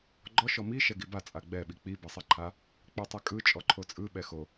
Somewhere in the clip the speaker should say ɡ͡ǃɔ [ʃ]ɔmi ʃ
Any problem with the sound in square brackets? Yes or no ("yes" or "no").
no